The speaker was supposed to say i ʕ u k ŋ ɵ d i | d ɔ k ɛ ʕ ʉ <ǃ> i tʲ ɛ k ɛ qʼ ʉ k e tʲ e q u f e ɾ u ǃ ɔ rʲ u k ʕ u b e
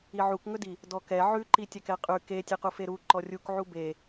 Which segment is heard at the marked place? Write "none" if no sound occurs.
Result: ǃ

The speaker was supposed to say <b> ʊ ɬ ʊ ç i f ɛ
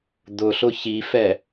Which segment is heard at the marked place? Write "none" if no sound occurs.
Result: d̪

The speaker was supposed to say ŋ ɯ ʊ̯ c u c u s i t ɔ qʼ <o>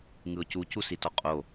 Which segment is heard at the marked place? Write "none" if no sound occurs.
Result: o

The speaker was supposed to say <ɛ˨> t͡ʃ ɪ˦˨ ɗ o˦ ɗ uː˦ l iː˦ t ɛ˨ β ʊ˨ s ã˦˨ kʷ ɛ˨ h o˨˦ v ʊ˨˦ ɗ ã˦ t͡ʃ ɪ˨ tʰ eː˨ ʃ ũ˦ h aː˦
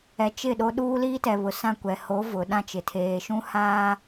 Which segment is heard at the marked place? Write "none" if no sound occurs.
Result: ɛ˨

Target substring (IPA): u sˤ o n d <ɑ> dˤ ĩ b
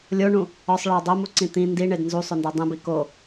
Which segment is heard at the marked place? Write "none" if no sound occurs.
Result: ɒ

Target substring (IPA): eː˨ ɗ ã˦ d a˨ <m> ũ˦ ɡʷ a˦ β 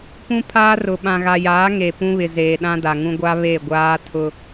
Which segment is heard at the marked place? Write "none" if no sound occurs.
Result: ŋ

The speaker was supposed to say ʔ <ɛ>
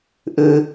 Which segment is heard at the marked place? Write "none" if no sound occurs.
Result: ɘ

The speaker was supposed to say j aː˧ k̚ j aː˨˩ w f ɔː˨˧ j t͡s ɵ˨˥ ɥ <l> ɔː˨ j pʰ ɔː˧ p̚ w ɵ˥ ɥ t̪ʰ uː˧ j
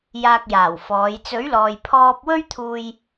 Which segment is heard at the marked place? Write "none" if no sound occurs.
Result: l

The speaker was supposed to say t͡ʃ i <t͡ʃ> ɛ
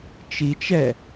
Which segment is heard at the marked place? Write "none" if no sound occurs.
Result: t͡ʃ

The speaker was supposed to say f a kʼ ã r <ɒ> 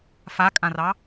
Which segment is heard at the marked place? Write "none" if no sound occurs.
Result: ɑ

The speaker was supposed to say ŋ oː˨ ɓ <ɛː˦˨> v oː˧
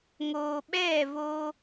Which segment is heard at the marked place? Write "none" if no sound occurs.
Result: ɛː˦˨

